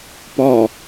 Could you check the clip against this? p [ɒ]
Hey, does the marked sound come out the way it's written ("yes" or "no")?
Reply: yes